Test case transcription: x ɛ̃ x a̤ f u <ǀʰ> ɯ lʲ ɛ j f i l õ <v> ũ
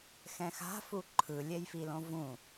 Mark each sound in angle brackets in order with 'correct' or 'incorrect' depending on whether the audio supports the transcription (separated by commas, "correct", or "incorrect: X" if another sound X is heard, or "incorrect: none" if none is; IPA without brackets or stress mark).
incorrect: ǃʰ, correct